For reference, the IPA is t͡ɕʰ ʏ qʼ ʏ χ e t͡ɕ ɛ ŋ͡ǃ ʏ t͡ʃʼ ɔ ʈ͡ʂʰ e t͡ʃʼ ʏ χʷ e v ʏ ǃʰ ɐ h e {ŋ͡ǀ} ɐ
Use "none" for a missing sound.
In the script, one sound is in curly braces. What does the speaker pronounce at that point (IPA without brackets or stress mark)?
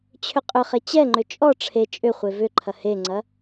ŋ͡ǀ